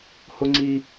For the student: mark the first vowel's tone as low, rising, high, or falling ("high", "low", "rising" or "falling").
high